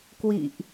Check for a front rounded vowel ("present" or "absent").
absent